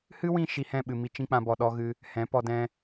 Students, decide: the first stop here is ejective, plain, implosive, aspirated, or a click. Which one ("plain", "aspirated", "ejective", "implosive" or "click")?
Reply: implosive